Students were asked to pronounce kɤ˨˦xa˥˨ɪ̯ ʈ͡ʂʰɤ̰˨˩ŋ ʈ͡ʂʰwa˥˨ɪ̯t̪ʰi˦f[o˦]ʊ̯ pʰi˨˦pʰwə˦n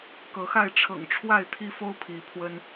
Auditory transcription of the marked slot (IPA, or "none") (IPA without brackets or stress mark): o˦